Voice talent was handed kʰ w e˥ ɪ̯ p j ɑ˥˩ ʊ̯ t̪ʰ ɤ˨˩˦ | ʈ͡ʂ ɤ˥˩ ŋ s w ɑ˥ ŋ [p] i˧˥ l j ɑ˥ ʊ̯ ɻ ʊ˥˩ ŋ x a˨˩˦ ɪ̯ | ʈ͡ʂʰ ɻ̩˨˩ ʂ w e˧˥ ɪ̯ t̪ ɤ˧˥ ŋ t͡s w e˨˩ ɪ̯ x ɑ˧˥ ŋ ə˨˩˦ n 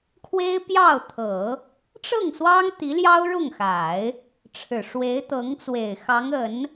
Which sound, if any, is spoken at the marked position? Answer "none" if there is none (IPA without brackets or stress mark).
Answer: t̪